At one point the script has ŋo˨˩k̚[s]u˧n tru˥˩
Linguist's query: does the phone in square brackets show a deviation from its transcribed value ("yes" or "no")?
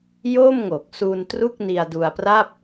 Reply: no